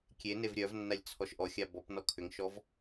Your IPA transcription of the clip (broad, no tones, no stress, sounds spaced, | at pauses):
kʲ e n e v ɾʲ œ v nː a lʲ t͡sʰ ɔ ʃ ʔ ɔ xʲ a b ɔ p n ɔ kʰ ʏ ŋ ʃ ɔ v